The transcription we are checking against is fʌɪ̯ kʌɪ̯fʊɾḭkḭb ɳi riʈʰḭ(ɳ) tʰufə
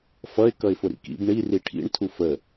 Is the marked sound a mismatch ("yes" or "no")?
no